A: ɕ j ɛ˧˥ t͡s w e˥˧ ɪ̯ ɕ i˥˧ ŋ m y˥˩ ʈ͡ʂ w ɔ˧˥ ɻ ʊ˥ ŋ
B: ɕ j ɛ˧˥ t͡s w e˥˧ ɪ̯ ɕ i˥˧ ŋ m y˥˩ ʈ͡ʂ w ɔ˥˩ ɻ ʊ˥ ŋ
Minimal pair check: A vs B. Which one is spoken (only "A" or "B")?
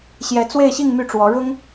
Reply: A